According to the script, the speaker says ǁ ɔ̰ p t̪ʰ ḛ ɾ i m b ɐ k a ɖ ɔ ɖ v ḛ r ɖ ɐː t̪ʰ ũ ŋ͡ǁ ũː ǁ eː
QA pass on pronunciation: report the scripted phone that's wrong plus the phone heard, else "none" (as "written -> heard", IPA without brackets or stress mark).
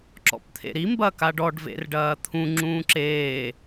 none